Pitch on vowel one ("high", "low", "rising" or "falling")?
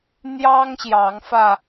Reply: high